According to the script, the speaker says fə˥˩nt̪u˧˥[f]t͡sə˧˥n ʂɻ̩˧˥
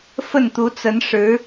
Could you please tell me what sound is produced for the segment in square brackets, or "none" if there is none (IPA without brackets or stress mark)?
none